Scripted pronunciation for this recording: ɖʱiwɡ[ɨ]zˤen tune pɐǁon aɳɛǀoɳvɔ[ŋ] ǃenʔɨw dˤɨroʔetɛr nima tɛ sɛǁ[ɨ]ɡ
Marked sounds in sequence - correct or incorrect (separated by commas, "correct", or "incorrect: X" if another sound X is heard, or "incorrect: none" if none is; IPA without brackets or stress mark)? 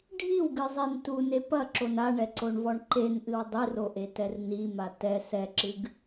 correct, incorrect: ɳ, correct